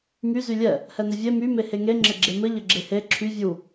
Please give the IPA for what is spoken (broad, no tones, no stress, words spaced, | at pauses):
my zylʲɛ | hɛnɘvʲe my meheŋe ŋ͡ǁɘɡ͡ǁemɘ ʎɘɡ͡ǁehe ǁʰy vʲu